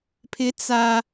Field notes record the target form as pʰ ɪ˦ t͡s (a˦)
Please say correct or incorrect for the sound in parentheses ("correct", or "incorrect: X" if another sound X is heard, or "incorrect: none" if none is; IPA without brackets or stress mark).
correct